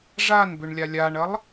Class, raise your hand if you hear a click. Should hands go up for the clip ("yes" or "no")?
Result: no